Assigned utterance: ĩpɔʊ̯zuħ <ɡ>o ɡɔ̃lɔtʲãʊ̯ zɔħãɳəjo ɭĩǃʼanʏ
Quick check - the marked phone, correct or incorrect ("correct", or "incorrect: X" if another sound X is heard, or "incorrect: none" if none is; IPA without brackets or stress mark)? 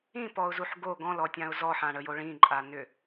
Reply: correct